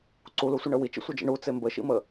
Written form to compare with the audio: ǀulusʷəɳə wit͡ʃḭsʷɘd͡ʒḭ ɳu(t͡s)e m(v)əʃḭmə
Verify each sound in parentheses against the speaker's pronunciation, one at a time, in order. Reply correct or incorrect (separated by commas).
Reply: correct, incorrect